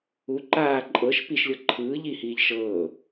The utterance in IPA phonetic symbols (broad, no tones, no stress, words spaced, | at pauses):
u ǃaː ǃʼɤʃ piʃlʲɤ ǃʰɯː ʎihiːʎ ʃɤː